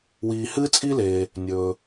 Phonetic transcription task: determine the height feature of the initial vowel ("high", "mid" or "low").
high